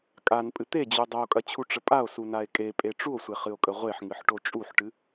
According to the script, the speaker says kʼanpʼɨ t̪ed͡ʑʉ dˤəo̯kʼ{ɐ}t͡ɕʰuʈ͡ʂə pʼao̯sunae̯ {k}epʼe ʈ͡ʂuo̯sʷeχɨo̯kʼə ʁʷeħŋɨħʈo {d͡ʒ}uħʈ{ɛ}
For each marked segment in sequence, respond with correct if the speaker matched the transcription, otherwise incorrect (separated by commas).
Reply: correct, incorrect, incorrect, incorrect